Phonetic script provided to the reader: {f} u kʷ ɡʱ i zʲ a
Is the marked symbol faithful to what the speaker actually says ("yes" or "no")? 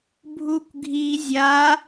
no